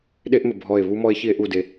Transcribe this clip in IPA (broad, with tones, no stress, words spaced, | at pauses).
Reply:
ɗe˦ʔmɘ˨ bʱɔ˦˨e̯ βu˦mɔ˦e̯ çi˦e̯ʔu˦˨de˦